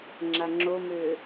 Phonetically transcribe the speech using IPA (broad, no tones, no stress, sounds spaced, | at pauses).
ŋ͡ǁ a ŋ͡ǁ o m ø